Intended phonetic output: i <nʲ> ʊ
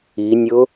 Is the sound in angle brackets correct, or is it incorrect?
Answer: correct